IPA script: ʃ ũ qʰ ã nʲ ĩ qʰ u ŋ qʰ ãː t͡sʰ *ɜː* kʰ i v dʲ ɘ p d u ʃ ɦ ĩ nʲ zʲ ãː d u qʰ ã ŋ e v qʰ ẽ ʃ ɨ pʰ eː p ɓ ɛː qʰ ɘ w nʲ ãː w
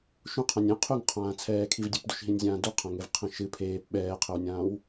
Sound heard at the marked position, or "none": ɛː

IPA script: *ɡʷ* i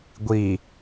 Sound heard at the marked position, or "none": ɡʷ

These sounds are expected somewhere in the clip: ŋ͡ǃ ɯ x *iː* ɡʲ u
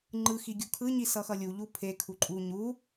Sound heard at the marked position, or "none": i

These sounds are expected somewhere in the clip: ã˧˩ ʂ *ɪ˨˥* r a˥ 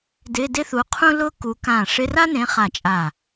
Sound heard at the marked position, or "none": ɪ˧˥˧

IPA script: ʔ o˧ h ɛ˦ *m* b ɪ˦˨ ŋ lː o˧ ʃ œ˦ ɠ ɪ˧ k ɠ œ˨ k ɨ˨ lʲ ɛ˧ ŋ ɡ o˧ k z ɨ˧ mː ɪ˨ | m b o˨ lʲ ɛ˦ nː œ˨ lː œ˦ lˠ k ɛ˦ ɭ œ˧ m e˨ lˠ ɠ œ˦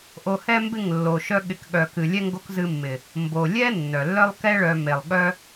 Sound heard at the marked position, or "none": m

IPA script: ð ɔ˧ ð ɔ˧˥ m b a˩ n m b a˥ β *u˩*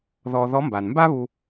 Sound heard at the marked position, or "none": u˧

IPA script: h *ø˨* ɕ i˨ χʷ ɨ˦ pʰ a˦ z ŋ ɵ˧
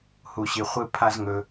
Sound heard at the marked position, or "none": u˨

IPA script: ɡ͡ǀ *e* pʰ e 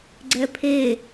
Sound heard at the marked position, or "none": ɛ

